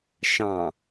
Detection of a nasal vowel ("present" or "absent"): present